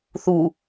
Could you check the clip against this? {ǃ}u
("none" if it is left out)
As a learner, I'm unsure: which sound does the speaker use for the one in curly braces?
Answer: θ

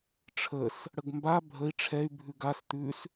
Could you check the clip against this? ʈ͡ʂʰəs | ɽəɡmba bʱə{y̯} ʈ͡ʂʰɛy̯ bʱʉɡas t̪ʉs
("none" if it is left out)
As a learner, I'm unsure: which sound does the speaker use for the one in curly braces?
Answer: i̯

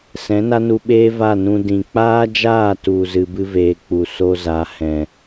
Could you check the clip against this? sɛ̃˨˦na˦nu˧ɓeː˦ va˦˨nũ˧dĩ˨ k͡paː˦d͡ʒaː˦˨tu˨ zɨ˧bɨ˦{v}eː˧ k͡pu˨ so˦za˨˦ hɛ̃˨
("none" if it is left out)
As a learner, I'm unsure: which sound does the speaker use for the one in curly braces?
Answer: v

